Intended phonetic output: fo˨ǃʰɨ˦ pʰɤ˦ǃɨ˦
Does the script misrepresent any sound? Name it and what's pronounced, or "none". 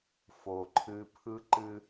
ɤ˦ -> ɯ˦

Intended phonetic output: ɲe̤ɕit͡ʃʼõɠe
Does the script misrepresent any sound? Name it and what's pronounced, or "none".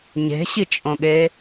none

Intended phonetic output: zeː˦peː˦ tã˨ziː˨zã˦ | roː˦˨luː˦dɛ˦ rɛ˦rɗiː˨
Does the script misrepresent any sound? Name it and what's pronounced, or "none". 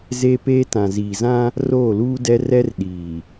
none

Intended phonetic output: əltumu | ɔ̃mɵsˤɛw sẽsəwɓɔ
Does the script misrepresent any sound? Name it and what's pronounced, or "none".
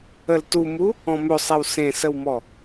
ɓ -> m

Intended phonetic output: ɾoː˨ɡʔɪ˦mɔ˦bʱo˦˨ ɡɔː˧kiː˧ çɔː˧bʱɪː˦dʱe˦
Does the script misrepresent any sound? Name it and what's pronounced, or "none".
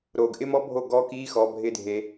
ç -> x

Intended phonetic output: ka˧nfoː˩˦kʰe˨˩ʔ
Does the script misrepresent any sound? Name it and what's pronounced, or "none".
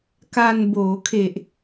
f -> b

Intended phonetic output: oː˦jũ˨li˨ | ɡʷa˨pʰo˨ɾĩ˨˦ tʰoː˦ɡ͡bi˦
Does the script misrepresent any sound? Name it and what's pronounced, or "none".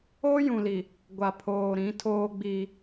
o˨ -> oː˨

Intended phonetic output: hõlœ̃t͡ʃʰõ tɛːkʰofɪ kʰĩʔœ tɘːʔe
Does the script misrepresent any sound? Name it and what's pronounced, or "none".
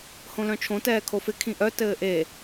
none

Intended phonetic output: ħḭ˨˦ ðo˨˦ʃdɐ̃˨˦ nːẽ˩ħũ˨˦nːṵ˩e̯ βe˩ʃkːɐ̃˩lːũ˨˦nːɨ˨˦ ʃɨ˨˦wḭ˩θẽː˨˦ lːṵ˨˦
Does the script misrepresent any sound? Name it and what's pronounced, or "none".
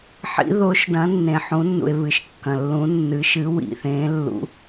e˩ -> ɨ˩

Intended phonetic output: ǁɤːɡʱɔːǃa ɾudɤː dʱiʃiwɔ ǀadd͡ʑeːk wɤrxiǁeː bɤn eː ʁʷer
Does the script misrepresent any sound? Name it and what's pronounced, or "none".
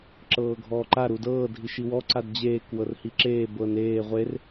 x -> h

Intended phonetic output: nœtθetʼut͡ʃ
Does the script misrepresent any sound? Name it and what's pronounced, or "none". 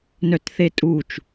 none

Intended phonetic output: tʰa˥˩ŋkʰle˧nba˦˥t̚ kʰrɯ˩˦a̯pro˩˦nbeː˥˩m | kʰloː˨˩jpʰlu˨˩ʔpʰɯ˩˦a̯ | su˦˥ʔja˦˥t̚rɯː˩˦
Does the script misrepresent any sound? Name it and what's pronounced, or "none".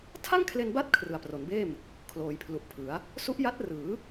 oː˨˩ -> oː˩˦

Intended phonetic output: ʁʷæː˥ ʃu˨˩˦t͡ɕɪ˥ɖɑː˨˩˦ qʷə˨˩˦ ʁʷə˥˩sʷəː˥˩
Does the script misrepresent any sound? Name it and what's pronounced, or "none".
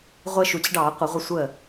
æː˥ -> əː˥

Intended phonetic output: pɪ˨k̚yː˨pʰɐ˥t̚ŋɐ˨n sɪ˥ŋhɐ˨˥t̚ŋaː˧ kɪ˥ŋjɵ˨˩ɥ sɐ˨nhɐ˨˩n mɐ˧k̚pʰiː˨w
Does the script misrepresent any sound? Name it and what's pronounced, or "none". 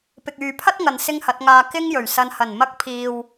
none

